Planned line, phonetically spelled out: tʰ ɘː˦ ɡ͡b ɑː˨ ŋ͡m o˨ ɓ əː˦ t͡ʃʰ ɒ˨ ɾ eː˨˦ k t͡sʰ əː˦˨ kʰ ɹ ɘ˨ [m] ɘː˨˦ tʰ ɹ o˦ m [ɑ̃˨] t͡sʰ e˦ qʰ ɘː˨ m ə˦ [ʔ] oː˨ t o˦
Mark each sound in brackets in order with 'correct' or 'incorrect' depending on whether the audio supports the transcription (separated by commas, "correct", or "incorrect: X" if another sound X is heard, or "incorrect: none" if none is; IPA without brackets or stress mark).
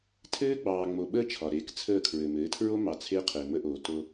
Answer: correct, incorrect: ɑ˨, correct